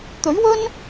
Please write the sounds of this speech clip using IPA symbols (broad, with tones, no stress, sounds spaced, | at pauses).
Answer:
t̪ ɵ˨˥ ɥ w ɵ˥ n